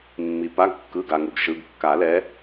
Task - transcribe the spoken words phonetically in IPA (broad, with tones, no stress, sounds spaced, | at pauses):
mː i˩ p a˩˧˩ ɡ kː ɯ˩˧˩ ɡ a˩ ŋ u˩ ɡ ʃ ɯ˩˧˩ ɡ kː a˨˩˦ l ɛ˨˦